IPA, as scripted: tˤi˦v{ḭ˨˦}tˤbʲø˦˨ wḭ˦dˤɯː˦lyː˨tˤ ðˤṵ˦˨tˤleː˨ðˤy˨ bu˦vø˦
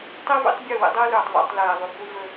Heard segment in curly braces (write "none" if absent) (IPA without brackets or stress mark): ḭ˨˦